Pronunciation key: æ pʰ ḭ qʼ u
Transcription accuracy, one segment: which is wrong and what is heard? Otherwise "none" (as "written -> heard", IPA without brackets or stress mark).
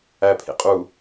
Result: none